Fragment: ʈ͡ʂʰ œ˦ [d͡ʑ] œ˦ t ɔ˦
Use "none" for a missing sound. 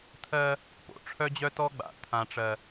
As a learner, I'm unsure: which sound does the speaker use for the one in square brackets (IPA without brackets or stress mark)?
d͡ʑ